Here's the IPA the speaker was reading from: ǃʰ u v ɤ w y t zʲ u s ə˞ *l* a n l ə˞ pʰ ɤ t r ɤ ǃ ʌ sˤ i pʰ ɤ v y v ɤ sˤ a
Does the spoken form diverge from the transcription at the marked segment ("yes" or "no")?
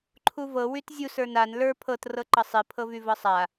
yes